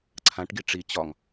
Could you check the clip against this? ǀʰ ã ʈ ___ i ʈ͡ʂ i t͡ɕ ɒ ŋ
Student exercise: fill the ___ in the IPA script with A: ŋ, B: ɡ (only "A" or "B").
B